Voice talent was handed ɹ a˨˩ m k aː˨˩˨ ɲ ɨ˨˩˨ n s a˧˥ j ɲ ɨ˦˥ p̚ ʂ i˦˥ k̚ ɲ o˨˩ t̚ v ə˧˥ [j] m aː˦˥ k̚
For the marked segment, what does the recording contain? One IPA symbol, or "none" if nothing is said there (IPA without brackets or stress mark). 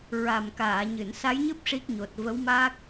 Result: w